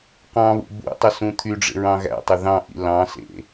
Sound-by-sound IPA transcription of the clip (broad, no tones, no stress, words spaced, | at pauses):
qɑ̃βṵ bṵtˤɵ sũt̪ʰyɖ͡ʐḛ ɹɑ̃ɣæ̰tˤɵ ðɑ̃ʔḭ lɑ̃sḛ